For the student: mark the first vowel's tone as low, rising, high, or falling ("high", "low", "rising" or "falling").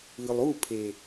low